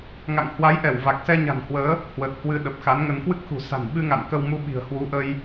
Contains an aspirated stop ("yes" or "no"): no